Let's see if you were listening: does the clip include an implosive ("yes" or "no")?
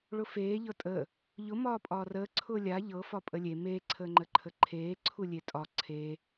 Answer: no